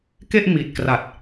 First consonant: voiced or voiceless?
voiceless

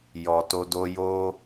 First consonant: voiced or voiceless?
voiced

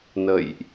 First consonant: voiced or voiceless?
voiced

